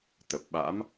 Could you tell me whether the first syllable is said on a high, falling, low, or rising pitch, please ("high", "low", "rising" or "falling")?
low